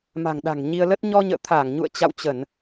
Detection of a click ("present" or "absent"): absent